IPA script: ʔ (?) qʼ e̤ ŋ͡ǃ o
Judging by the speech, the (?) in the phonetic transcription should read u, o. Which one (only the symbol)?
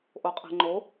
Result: o